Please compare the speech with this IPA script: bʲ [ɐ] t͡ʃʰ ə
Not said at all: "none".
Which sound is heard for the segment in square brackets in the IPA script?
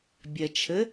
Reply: ɐ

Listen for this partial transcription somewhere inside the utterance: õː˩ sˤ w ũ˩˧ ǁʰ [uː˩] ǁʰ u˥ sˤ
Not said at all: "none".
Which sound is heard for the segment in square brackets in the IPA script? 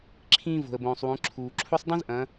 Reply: uː˩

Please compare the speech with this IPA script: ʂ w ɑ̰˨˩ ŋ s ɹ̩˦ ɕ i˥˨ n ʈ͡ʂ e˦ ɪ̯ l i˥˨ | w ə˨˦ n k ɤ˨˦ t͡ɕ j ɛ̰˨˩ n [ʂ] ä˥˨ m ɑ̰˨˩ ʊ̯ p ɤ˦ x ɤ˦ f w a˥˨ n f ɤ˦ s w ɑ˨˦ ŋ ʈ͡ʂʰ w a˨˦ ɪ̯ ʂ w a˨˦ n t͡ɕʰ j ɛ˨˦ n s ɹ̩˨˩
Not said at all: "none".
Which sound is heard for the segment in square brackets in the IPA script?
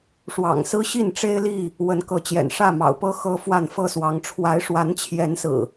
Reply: ʂ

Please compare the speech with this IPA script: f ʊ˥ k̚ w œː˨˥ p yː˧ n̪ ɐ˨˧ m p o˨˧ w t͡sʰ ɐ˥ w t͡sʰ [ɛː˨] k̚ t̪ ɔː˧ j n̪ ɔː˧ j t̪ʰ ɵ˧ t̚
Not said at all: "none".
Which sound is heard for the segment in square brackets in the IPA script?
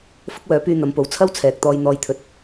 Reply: ɛː˨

